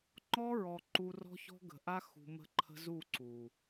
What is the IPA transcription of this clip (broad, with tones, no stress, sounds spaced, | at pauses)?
ŋ͡ǃ ɔ˦ ɹ ɔ˨ ǃ u˧ r ɔ̤˦ ç ɔ̤˦ ɡ ə̤˨ ʔ a˦ x ṳ˧ m ə̤˦ ǃʰ ə̤˦ z u˦˨ ǀ u˨